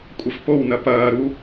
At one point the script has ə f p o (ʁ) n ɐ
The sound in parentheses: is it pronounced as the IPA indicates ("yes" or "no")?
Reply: no